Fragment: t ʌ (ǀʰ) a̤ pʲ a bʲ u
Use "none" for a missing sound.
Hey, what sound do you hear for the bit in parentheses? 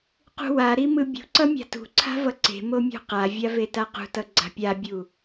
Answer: ɡ͡ǀ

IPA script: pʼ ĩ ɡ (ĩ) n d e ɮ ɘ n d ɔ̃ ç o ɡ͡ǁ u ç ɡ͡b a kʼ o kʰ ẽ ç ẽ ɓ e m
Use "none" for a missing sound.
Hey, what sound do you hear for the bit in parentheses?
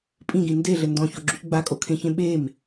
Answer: ĩ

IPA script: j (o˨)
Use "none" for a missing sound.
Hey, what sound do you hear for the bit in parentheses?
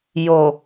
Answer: o˨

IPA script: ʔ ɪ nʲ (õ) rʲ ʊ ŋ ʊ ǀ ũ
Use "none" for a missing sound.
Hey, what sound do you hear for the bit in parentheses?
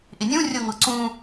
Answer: ũ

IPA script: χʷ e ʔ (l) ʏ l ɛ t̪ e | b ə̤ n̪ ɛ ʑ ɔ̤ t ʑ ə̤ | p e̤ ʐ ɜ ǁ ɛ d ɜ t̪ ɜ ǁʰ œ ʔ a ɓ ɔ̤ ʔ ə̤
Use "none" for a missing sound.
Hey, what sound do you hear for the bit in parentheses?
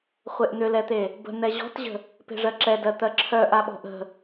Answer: n̪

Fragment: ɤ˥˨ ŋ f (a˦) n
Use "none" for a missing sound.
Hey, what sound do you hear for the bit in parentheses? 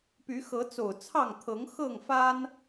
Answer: a˦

